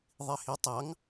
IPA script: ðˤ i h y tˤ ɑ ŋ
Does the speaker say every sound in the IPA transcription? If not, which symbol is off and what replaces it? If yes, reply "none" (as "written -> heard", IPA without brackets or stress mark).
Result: y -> i